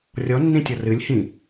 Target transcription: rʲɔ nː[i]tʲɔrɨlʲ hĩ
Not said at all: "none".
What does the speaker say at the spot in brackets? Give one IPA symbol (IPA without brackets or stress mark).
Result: ĩ